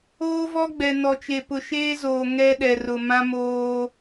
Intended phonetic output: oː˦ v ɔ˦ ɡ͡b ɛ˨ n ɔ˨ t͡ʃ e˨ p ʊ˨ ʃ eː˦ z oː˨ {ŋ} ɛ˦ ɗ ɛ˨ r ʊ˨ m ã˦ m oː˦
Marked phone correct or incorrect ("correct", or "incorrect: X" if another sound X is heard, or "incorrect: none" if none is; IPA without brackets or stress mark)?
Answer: correct